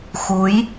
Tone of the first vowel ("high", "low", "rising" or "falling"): rising